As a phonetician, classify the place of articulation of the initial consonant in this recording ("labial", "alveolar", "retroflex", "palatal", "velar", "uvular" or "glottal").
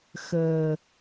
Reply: velar